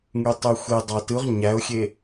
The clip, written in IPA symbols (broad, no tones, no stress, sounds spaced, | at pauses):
ŋ y tˤ y xʷ e dˤ ɑ t ɯ ʁ ɲ æ ʊ̯ xʲ e